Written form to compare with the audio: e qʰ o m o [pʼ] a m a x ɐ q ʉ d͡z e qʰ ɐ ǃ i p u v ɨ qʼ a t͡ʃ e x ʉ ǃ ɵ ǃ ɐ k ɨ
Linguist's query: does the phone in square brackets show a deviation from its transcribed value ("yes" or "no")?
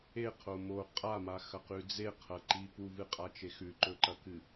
yes